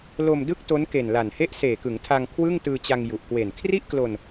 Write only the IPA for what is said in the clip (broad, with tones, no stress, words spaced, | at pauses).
lo˧m dɯ˥˩k̚to˦˥n ke˨˩nla˨˩nhe˥˩ʔ seː˨˩kɯ˩˦ŋtʰa˧ŋ kʰwɯ˥˩ŋtɯː˧t͡ɕa˧ŋ ju˨˩ʔkwe˨˩n kʰri˥˩ʔklo˧n